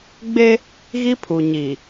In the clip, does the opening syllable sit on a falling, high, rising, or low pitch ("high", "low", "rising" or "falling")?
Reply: high